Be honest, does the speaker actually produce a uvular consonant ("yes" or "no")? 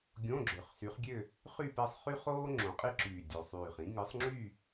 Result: yes